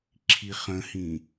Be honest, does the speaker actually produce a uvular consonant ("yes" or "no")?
yes